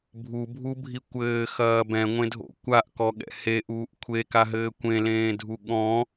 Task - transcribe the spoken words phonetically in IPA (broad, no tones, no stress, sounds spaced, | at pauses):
bʱ u bʱ u bʱ i kʷ ɘː x ɐː b ɛ̃ ŋʷ ẽ dʱ o̰ kʷ a ʔ k ɔ ɠ ɛ̰ h e ʔ uː ʔ kʷʰ e k a ɦ ɘː kʷ ẽ l ẽː dʱ u ɠ ɔ̃